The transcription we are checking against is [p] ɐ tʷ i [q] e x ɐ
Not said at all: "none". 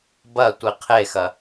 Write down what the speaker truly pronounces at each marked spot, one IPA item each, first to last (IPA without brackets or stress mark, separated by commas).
b, qʰ